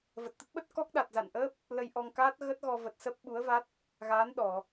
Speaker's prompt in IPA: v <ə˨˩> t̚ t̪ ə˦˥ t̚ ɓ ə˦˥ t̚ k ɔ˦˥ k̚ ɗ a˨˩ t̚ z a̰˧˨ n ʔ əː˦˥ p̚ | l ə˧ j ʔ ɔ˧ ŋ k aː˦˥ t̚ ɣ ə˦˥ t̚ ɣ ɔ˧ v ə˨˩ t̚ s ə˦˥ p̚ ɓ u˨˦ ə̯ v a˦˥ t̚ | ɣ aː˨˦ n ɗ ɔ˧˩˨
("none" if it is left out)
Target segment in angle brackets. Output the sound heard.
ə˨˩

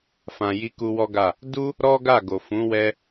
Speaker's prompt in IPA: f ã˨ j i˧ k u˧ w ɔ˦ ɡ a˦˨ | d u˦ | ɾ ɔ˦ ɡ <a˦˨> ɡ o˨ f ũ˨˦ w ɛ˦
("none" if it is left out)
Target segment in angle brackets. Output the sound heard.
a˦˨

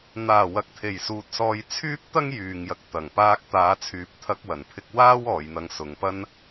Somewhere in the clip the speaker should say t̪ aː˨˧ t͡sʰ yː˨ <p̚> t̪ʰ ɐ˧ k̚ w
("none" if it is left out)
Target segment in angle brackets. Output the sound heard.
p̚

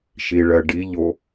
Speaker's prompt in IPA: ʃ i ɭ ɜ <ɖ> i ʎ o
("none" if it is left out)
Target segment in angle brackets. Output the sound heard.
ɖ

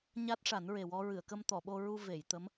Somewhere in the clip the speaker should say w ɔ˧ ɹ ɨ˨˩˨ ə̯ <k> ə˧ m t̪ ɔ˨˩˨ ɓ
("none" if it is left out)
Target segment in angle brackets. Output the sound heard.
k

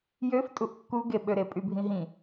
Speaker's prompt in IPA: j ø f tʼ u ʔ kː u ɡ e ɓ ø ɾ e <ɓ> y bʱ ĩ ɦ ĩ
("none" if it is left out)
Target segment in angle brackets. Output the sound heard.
pʼ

